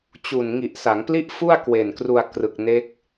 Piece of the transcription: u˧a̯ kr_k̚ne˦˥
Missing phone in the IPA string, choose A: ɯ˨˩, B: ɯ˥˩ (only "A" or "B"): A